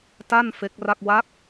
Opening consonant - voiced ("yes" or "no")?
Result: no